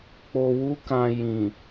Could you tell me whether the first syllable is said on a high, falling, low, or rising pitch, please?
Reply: low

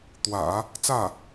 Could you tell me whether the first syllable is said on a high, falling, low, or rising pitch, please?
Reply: low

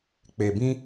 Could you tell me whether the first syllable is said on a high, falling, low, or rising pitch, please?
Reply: low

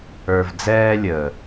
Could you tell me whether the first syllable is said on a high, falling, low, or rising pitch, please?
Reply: low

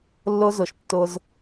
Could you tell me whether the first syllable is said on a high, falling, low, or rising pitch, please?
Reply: high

